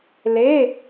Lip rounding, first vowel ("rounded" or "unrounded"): unrounded